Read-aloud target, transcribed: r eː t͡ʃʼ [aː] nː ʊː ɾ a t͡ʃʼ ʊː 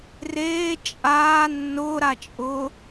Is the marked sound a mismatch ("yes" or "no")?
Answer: no